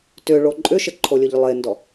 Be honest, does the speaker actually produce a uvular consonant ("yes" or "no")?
no